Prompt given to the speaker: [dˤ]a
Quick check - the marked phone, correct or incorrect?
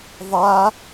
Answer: incorrect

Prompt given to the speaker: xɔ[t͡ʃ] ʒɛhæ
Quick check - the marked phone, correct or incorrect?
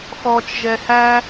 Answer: correct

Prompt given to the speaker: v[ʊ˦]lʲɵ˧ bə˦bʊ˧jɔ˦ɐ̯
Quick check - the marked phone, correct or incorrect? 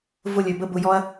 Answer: correct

